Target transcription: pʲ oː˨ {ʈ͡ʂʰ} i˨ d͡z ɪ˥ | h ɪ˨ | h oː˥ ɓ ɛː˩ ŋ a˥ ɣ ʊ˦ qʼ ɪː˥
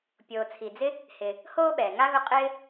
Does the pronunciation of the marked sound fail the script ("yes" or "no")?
yes